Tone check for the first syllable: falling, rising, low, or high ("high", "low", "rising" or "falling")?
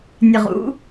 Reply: low